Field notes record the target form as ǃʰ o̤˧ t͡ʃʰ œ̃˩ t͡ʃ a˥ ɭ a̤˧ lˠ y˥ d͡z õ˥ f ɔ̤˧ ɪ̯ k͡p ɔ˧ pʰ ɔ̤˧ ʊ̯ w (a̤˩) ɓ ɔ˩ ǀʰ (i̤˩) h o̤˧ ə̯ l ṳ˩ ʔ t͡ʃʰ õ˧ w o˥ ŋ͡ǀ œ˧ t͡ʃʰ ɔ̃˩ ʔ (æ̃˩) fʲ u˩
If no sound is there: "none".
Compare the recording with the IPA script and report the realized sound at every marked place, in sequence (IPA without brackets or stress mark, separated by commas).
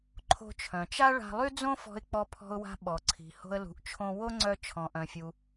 a̤˧, i̤˩, œ̃˩